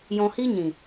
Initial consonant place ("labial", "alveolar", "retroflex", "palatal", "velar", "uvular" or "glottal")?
palatal